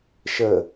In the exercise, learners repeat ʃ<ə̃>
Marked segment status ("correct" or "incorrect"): incorrect